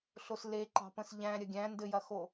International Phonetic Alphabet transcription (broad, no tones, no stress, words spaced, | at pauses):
ɬosle ǃɑ̤pə̃sʎæ̃ ɾʲɐɡʲæ̃ ndɘjɐxo